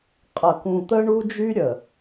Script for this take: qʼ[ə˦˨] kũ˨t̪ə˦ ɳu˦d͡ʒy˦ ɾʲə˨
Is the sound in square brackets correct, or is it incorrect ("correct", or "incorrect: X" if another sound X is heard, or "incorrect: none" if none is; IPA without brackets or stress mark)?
incorrect: ə˨